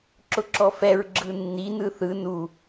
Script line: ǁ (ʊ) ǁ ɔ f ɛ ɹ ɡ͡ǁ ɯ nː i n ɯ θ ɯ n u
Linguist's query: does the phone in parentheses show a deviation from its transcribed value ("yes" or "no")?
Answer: no